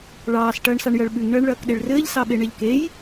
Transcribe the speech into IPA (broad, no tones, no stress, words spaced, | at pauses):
ɭɑːs ʈɐːɳsɑɳjɐɭɓʉŋ ɳɐːɳɭɐːkɗeɭrɘːʎ sɑɓeɳeʎkej